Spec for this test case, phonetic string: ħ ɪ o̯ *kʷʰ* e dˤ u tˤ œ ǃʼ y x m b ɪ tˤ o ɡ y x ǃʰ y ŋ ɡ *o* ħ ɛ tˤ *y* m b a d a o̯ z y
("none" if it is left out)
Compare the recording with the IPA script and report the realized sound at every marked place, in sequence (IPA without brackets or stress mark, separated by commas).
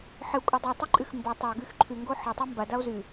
kʷʼ, o, y